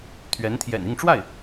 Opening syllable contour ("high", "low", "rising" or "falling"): rising